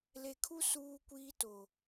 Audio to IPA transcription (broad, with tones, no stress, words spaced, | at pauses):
le˨kʰu˦ suː˦kʷiː˦to˨